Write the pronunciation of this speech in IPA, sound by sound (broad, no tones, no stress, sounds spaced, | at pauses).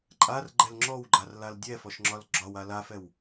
ǃʼ a r ɡ͡ǃ ɛ l ŋ͡ǁ ɔ w ɡ͡ǃ a r l a l dʲ ɛ f ɔ ʃ ŋ͡ǁ ɒ l ɡ͡ǁ ɒ w a l a f ɛ w